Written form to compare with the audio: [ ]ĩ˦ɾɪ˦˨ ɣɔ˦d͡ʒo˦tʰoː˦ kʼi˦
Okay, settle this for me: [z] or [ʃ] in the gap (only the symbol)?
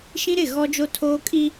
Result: ʃ